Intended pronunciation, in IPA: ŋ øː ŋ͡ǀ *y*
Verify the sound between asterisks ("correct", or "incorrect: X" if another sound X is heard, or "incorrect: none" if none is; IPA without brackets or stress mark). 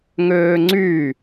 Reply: correct